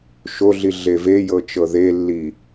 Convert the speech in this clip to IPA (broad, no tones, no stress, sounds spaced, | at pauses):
ʃ o ɮ i ɮ e v e j ɤ t͡ʃ ɤ ð e lː i